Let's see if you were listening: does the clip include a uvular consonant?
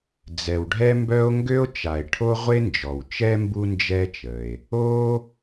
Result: yes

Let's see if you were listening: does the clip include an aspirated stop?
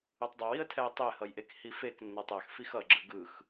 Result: yes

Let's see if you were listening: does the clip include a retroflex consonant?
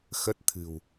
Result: no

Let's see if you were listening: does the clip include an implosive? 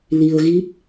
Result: no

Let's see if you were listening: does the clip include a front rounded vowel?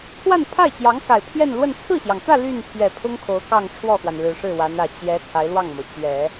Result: yes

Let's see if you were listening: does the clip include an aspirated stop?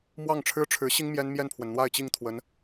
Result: yes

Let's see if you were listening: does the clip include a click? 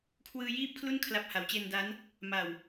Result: no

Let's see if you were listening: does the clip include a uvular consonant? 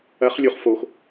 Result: yes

